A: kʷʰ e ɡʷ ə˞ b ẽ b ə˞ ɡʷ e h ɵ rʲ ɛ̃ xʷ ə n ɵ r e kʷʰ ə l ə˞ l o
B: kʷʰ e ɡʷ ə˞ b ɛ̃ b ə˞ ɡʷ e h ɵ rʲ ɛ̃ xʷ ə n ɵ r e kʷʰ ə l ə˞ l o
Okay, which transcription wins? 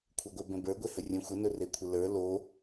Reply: B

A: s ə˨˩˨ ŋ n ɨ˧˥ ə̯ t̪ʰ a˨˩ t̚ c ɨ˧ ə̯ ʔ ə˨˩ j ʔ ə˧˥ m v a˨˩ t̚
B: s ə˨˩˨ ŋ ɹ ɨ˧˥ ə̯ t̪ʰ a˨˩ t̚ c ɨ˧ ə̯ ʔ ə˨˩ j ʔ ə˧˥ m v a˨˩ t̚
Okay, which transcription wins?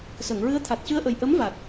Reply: B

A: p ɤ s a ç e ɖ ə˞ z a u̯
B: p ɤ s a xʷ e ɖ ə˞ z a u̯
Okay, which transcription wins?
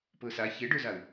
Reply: A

